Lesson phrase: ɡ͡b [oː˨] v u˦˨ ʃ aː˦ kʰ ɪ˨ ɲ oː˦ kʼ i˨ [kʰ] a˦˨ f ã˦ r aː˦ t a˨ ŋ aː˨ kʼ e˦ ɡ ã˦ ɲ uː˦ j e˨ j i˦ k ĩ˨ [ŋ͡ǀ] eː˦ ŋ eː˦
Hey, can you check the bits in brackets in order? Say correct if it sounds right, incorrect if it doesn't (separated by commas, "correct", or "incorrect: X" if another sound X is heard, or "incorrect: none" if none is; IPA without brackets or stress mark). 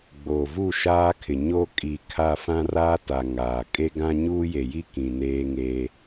correct, correct, incorrect: n